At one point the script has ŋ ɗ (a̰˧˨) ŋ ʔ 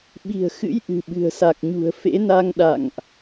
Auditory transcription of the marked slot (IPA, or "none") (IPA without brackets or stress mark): a̰˧˨